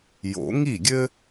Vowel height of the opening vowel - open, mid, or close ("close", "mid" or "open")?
mid